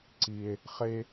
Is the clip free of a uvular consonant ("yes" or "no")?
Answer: no